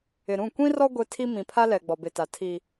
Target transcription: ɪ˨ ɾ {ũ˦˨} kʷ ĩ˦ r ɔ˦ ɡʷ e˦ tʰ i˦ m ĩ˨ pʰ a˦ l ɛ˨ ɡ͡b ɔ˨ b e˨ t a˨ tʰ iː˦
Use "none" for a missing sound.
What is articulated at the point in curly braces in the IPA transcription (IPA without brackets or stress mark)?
ũ˦˨